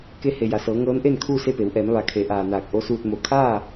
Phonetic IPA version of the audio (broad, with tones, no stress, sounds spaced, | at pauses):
k e˧ h e˩ j a˩ s ɤː˩˧ ŋ ɤː˧˥ n ʔ e˥˨ n kʰ uː˥˨ s e˥˨ p e˩˧ w ʔ ɛː˩˧ m ʋ a˩˧ kʰ e˩˧ ʔ aː˩ n aː˧˩ k̚ ʔ o˧˥ s uː˧ t̚ m o˧˩ kʰ aː˥˨